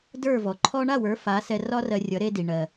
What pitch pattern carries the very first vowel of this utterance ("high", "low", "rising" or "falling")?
falling